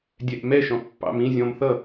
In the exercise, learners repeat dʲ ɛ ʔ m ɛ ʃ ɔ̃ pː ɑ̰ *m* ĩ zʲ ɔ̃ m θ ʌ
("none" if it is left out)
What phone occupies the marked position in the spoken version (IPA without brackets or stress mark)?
m